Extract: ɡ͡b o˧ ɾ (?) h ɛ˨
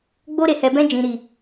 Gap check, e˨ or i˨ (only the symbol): e˨